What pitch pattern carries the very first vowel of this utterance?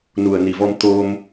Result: low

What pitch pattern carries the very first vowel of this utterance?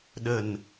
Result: low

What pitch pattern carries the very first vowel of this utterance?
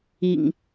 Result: low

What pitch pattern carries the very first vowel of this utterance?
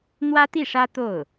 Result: high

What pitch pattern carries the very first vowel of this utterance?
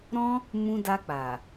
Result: high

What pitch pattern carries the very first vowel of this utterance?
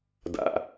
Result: low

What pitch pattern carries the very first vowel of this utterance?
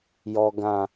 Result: low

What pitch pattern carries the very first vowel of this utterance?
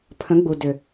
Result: rising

